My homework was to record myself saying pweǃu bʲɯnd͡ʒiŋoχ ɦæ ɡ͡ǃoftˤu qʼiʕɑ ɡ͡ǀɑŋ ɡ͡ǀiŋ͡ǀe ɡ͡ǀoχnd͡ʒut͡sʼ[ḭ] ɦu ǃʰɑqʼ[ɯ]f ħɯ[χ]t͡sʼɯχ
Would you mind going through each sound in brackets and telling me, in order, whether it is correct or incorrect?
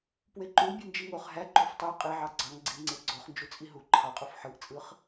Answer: incorrect, incorrect, incorrect

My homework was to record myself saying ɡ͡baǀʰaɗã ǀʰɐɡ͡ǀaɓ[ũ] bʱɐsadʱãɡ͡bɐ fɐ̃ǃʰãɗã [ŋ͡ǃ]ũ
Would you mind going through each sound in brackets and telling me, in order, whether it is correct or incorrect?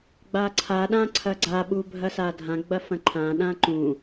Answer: incorrect, incorrect

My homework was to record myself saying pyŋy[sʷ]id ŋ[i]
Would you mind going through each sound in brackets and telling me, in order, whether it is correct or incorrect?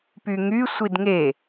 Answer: correct, incorrect

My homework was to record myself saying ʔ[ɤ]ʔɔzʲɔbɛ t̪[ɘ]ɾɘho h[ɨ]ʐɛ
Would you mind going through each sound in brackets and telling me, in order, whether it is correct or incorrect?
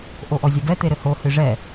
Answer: incorrect, incorrect, correct

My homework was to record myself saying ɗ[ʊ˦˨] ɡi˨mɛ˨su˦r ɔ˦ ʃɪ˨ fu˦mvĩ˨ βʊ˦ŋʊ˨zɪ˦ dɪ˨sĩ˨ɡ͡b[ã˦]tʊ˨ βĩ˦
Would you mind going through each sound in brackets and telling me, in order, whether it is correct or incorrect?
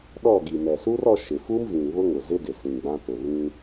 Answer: incorrect, correct

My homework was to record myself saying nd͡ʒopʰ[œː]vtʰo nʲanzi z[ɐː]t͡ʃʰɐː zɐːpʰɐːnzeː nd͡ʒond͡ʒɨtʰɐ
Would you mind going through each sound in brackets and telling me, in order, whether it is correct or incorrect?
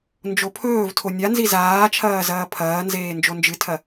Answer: incorrect, incorrect

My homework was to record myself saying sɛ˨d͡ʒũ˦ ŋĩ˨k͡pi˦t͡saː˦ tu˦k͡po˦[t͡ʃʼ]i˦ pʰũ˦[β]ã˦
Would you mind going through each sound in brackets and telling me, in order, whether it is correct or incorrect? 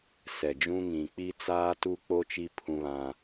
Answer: incorrect, correct

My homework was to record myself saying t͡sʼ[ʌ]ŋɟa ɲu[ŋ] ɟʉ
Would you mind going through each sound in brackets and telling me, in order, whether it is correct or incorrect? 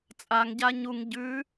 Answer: incorrect, correct

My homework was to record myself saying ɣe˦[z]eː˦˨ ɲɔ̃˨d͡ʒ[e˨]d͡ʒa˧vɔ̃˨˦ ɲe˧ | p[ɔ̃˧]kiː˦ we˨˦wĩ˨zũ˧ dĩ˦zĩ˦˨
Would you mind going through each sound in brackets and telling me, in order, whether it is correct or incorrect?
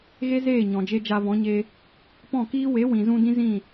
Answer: correct, incorrect, incorrect

